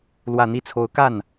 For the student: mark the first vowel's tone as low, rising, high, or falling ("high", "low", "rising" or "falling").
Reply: low